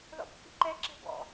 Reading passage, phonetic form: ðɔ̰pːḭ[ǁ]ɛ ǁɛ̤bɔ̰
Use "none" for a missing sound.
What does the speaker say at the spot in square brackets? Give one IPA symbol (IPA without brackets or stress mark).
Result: ǃ